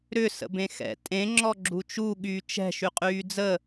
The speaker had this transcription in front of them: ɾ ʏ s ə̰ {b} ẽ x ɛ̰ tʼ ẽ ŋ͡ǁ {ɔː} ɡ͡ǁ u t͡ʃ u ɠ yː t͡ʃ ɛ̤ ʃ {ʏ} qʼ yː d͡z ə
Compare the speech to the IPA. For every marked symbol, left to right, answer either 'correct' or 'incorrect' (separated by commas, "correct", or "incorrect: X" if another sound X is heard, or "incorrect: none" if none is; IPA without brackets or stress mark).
correct, incorrect: ɔ, incorrect: y